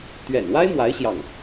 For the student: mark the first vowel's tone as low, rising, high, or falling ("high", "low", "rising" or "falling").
low